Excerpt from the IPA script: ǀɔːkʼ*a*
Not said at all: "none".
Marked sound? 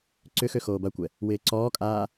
aː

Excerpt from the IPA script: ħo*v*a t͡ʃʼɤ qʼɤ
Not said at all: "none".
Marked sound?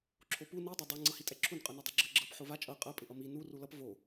v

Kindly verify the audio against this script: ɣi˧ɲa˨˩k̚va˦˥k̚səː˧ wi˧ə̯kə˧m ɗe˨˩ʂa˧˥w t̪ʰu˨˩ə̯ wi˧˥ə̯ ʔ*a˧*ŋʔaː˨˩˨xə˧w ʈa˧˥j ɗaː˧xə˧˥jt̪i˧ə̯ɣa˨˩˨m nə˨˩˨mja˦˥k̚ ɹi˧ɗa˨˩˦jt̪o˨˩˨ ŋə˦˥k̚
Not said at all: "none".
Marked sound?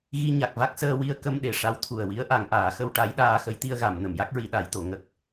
a˨˩˨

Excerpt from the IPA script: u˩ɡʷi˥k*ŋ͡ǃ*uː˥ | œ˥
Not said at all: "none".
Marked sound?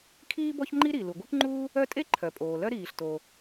ŋ͡ǃ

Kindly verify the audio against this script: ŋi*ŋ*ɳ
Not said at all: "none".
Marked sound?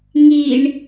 none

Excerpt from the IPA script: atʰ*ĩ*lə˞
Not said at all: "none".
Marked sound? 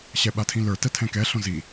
ĩ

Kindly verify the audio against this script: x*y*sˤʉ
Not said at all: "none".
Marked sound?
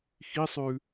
i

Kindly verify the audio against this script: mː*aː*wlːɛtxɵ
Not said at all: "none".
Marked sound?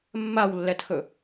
a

